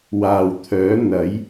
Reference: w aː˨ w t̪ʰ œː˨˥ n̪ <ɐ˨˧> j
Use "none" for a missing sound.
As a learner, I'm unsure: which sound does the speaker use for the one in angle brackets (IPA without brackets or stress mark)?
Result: ɐ˨˥